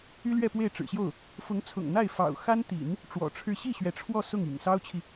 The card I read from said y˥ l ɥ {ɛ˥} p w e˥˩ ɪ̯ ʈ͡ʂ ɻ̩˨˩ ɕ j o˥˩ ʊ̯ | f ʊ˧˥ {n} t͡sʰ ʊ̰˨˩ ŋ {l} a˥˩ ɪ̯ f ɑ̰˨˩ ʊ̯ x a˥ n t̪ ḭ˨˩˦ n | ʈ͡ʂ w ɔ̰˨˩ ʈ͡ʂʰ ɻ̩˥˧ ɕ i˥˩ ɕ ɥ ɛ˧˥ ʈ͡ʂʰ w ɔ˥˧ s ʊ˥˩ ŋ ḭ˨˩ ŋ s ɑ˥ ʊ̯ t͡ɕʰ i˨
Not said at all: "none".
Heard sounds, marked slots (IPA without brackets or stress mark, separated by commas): ɛ˥˧, ŋ, n̪